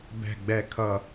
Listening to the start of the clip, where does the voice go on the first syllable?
low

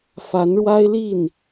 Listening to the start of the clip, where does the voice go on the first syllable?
rising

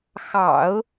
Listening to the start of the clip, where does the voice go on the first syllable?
low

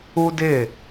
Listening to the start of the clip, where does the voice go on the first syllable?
high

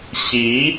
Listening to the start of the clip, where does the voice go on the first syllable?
rising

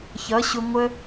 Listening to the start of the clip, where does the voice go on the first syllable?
rising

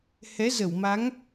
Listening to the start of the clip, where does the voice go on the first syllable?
rising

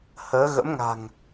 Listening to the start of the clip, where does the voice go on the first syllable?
rising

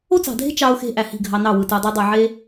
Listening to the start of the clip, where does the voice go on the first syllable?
high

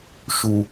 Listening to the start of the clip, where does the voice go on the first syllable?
high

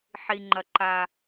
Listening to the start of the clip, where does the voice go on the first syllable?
low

